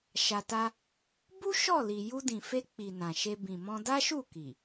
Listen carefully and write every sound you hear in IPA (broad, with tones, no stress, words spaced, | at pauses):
ʃa˧ta˦ | bu˦ ʃɔ˦˨li˨ ju˧dĩ˨fe˧ k͡pi˨ nã˨ʃe˧ bĩ˨mɔ̃˧da˦ ʃu˦˨ki˨